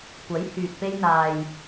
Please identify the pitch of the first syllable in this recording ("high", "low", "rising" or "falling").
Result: rising